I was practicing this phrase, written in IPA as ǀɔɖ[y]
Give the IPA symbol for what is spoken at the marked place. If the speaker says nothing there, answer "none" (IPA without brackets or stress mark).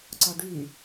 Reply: y